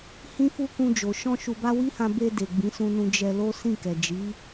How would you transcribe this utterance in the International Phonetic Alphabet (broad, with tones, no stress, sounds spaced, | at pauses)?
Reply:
h ĩ˦ f u˦ k ũ˧ d͡ʒ o˨ ʃ ɔ̃˧ ʃ u˨ b a˧ w i˦ h ã˧ b e˧ d e˨ ɡ͡b ĩ˨˦ s ũ˧ n ũ˧ d͡ʒ ɛ˧ l o˦ s ĩ˦˨ k ɛ˨ d͡ʒ i˨˦